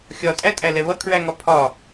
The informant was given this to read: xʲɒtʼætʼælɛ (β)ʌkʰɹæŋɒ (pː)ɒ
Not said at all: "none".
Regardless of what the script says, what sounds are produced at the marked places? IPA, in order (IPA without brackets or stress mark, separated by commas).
β, pʰ